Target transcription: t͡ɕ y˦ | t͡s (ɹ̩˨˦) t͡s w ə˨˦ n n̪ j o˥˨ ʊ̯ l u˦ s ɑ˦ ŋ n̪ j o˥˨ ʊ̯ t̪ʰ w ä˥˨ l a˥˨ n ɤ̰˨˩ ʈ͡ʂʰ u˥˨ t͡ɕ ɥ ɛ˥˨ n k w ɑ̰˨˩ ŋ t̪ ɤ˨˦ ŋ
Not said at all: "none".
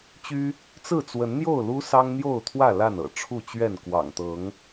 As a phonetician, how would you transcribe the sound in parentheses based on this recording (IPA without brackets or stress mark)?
ɹ̩˥˨